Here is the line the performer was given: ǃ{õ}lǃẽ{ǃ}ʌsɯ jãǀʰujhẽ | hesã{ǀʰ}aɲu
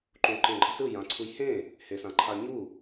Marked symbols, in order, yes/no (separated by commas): no, no, no